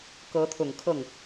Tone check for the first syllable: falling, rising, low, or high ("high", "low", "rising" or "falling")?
rising